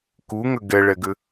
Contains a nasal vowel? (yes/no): no